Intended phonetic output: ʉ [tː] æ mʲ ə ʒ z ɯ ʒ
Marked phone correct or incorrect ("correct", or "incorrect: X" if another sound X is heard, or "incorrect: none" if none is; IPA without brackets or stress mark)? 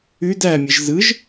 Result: incorrect: d